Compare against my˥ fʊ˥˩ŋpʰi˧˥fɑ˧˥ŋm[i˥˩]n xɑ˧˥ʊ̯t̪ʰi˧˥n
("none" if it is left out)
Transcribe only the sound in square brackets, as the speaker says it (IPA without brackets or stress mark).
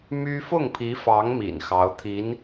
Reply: ḭ˨˩